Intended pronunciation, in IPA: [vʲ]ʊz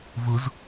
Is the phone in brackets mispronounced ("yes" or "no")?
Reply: yes